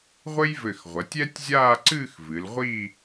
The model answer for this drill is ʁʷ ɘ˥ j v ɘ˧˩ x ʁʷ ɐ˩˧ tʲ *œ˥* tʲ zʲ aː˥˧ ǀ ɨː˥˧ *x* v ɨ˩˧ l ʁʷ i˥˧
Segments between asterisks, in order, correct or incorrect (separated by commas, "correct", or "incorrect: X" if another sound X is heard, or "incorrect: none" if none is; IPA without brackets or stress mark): incorrect: ɛ˥, correct